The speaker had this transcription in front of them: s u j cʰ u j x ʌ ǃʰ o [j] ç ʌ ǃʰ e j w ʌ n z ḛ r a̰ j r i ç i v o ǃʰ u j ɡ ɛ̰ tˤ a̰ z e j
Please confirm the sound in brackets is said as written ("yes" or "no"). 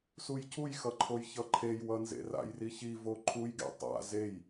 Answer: yes